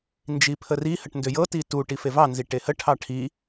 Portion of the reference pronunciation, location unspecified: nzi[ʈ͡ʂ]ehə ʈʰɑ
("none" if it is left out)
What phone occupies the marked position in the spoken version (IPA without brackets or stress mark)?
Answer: ʈ